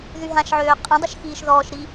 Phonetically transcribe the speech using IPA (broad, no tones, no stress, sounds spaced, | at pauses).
ð y ɦ ã ʃ ʕ øː qʼ ə̃ dˤ ə ʃ x iː ʃ ð ɔː ʃ ɾ i